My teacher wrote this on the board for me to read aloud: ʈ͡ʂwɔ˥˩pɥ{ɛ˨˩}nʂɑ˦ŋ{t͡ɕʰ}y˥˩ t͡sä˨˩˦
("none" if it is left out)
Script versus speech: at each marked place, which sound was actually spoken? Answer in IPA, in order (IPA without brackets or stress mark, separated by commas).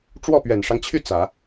ɛ˨˩, t͡ɕʰ